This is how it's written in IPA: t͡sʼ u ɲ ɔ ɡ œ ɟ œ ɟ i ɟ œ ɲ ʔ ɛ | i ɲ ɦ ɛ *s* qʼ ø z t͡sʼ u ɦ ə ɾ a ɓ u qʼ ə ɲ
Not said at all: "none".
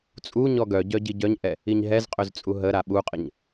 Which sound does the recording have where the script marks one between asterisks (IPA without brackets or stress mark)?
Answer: z